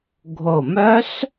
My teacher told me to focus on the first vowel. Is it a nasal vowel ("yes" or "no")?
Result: no